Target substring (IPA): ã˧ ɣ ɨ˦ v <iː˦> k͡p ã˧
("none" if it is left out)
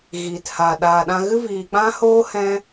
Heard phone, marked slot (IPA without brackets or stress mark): iː˨